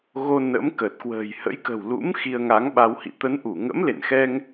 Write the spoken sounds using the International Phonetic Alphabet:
ɣ o˧ n ə̰˧˥ m k ə˨˩ t̚ k w ə̤ː˨˩ j h ə̰˧˥ j k ə̤˨˩ w l ṵ˧˥ m x i˧ ə̯ ŋ a˨˦ ŋ ɓ a˧ w h ḭ˧˨ t̪ ə˨˦ n ʔ u˧˩ ŋ ə̰˧˥ m l ḛ˧˨ n x ɛ˧ ŋ

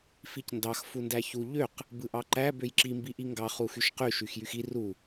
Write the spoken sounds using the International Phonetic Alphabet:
f i c n d ɑ x f u n d æ ç u ʎ ø q | b ɯ ʔ ɑ ǃ æ b ø j ǁ i m b i ʔ i ŋ ɡ ɑ χ u x y ʃ q y ʃ y x j y x i r u

